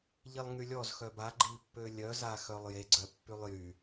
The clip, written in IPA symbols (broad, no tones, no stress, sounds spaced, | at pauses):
ʎ i lˠ ŋ y lʲ ɔ z x œ b a ɡ͡ǃ i pː ø lʲ œ z a x œ lˠ j e ɡ͡ǀ œ pː y lˠ j y